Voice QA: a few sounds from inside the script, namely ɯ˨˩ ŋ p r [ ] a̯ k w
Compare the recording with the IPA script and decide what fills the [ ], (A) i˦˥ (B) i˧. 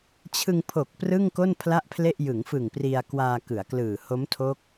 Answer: B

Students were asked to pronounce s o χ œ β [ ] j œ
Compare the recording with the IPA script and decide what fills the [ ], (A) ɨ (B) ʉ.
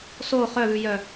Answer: B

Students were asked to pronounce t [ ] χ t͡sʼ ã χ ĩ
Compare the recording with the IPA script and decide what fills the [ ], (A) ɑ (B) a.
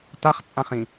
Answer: B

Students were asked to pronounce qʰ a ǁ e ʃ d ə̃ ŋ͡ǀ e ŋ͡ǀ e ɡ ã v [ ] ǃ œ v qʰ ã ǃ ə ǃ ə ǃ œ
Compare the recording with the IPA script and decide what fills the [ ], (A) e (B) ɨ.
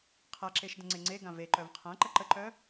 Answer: A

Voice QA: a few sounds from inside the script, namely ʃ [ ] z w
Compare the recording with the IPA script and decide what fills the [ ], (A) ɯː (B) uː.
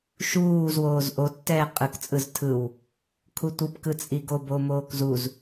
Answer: B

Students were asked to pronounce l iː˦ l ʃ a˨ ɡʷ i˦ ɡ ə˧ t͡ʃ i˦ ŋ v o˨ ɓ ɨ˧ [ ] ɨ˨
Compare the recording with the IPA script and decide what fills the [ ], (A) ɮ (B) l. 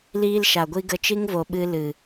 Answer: B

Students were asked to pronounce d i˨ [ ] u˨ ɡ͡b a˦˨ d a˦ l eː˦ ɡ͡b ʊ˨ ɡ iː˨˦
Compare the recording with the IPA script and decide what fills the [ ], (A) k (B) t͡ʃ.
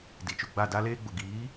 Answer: B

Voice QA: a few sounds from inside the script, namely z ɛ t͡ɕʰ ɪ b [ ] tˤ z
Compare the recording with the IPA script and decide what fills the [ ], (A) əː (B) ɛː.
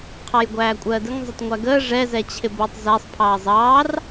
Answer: A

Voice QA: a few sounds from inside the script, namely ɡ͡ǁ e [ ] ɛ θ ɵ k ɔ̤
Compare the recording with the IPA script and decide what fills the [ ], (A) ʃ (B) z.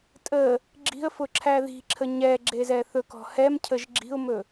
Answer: B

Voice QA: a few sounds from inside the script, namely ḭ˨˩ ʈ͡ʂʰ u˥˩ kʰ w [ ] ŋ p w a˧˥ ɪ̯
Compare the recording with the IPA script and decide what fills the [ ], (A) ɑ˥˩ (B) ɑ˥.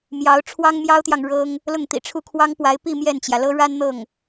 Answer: B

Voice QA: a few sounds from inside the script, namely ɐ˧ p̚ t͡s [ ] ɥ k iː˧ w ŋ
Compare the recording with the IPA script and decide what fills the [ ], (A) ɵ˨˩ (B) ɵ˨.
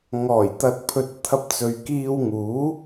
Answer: B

